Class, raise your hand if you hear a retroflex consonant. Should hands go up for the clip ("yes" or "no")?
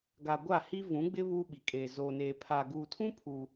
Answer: no